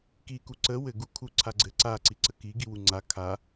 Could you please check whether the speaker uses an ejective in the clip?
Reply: no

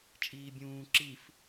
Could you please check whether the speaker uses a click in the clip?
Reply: yes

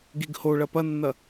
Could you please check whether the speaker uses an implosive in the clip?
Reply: no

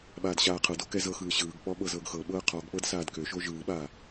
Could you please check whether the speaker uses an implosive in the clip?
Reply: yes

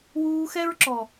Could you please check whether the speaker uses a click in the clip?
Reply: yes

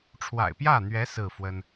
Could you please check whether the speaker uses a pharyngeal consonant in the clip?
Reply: no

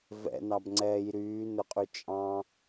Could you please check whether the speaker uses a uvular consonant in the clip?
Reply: yes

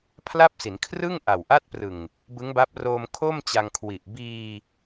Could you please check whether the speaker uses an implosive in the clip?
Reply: no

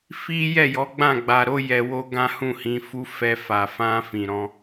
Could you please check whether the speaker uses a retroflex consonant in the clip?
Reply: no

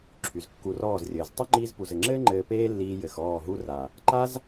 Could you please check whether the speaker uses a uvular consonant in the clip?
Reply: no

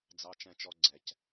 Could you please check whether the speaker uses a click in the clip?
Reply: yes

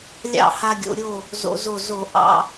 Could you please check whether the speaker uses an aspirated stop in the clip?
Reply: no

